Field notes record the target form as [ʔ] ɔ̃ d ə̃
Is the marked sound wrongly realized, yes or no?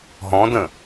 yes